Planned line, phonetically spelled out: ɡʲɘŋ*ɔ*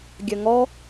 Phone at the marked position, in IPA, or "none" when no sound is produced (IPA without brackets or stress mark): ɔ